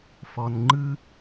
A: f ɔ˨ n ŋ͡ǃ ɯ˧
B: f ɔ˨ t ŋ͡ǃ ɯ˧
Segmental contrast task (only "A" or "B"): A